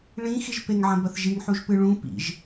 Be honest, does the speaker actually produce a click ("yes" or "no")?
no